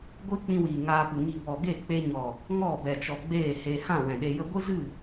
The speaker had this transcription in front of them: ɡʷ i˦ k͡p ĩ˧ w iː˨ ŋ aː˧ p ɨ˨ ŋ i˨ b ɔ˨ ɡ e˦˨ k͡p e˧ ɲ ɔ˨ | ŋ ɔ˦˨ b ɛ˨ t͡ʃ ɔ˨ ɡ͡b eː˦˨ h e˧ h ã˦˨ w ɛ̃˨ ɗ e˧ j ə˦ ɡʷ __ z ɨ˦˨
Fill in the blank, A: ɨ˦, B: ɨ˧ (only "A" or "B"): A